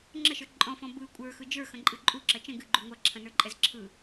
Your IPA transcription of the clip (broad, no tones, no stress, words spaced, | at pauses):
ŋ͡ǁəʃə˞ ǃʼɔ̃fɔ̃ bɯ kʷʼə˞xɯ d͡ʒə˞xɐ̃ǃʼɨ ǃʼuǁɐ t͡ʃə̃ ɡɨɡ͡ǃu ŋʷɐǁʰɐ̃nə˞ǃʼɛz ǁʰɯ